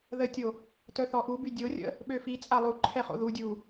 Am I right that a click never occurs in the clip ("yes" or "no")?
no